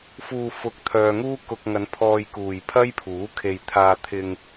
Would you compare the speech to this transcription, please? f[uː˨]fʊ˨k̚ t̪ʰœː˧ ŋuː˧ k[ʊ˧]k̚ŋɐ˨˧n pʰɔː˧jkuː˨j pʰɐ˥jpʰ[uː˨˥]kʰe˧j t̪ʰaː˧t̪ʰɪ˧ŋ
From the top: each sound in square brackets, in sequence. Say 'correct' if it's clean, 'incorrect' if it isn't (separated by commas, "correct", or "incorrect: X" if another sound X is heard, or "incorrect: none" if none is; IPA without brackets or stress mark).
correct, correct, correct